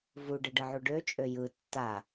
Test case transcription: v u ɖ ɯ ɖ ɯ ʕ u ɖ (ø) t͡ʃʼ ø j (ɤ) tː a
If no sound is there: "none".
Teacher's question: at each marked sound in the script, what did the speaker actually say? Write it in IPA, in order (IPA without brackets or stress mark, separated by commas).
ø, ɯ